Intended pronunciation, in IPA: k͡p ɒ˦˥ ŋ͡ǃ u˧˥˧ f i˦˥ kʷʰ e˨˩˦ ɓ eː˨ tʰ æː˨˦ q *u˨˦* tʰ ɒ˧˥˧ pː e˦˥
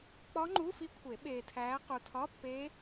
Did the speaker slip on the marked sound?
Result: yes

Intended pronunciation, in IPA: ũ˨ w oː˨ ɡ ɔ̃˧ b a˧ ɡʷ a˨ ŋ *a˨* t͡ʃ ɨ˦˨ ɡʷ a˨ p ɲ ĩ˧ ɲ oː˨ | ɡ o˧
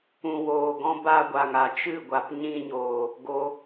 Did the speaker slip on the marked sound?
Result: no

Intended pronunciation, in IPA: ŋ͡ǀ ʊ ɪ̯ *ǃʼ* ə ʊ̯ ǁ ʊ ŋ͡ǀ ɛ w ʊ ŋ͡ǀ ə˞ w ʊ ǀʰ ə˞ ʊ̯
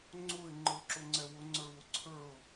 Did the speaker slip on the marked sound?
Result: yes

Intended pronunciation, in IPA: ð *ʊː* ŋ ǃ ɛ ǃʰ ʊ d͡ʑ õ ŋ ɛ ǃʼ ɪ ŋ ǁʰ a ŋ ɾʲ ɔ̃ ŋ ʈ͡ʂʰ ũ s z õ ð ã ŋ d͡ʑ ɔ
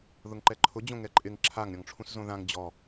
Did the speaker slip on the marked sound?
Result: yes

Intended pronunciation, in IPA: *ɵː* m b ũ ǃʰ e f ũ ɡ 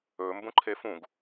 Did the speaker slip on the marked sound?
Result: no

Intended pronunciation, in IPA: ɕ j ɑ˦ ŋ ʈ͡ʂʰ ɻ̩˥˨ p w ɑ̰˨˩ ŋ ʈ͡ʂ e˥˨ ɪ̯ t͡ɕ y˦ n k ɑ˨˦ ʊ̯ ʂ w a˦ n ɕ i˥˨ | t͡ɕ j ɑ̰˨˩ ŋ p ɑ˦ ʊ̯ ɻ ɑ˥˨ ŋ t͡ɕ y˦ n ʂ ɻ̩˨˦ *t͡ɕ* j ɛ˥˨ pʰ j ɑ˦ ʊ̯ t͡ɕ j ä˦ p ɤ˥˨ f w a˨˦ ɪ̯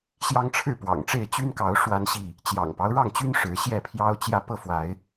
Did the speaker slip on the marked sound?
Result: yes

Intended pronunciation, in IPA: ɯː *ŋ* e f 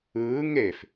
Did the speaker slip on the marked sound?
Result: no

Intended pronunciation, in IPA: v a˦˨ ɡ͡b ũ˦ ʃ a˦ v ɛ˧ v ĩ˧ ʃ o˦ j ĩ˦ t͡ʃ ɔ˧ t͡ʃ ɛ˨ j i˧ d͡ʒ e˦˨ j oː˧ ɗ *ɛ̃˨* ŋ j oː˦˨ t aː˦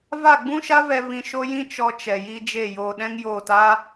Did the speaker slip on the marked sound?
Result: yes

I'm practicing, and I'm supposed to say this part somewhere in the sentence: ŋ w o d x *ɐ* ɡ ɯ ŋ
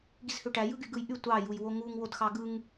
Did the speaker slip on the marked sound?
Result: yes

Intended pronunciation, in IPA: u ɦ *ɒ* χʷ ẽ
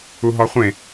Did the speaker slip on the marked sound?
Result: no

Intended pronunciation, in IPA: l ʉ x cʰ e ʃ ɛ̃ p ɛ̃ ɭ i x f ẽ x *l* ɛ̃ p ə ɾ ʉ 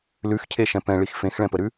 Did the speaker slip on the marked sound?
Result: yes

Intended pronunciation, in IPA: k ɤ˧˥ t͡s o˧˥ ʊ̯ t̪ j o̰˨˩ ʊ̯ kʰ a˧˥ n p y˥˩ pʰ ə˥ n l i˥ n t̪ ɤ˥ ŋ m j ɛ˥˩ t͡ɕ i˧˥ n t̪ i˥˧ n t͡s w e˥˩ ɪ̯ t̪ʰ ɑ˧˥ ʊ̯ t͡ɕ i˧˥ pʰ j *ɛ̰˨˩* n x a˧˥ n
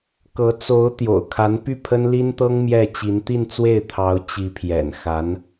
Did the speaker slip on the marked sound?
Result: no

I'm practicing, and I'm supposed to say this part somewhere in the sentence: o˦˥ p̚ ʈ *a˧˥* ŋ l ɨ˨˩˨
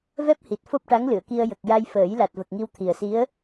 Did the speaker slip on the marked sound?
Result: no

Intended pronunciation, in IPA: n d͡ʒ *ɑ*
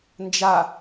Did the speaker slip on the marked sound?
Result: yes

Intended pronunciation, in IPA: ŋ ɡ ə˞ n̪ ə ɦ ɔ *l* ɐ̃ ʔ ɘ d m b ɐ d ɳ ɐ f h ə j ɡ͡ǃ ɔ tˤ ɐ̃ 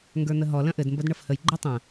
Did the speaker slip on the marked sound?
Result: no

